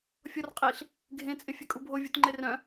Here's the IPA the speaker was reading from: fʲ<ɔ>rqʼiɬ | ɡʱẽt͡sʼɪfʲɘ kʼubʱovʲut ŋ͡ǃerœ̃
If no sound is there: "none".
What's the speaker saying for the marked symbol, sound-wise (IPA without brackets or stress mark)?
ɔ